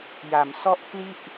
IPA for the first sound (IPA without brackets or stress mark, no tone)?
j